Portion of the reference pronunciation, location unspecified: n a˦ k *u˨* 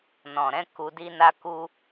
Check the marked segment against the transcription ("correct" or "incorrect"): incorrect